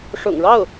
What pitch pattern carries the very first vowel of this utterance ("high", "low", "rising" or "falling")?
low